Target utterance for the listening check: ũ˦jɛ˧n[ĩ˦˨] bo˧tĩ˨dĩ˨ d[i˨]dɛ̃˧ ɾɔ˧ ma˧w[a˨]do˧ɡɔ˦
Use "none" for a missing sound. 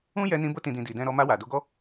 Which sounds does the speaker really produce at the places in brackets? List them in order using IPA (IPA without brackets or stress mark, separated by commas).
ĩ˧, i˨, a˨